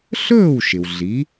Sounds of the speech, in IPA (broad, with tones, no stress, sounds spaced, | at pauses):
ɬ ɵː˥˩ w ʃ ɪ˩ w ɮ i˩˥